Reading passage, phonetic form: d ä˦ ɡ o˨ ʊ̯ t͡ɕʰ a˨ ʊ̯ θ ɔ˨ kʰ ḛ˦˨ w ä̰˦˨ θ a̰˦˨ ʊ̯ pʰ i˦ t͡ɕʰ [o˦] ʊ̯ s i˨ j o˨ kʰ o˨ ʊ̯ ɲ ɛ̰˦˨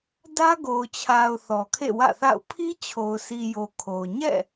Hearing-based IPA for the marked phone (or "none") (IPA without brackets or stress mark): o˨